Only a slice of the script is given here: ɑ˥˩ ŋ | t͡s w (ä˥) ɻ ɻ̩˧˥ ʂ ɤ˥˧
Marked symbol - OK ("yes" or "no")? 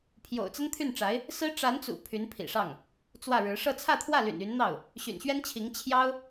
no